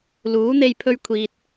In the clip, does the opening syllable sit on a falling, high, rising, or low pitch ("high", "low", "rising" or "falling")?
rising